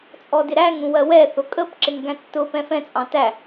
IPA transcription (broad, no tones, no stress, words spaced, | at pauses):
t͡sʼɔdɪɾæŋ ũwɜwɛ θʊkʼəp ǁɪŋɡæ̃tːʊ pɛ̃fɛ̃ t͡sʼɑ̃tæ